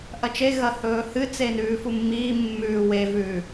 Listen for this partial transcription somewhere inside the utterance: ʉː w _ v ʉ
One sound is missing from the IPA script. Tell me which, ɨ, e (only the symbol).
e